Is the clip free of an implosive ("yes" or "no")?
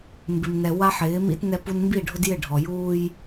yes